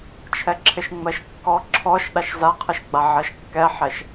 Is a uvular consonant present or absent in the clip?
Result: present